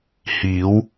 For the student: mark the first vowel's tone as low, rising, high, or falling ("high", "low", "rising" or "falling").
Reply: rising